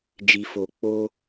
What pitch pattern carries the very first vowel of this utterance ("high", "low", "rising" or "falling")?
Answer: low